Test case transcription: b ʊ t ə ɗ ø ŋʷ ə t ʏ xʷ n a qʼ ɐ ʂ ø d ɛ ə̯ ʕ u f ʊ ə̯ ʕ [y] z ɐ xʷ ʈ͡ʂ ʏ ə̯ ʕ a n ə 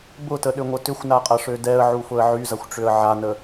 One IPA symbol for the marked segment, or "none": y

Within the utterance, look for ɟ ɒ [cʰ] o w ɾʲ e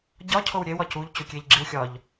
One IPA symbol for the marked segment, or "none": cʰ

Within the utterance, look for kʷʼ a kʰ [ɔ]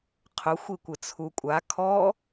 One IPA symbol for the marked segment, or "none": ɔ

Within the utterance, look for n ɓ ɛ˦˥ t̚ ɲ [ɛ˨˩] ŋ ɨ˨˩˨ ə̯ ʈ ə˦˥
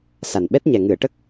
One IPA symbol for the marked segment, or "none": ɛ˨˩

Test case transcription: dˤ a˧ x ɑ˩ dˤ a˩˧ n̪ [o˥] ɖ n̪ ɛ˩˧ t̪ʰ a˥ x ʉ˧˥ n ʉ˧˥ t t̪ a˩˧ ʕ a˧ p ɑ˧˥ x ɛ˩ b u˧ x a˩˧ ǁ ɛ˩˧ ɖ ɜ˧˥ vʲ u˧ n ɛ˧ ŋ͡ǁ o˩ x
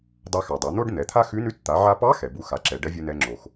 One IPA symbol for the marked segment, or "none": o˥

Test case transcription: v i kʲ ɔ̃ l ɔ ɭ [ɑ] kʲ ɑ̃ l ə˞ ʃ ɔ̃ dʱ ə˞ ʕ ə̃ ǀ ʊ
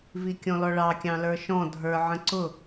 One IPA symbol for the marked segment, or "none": ɑ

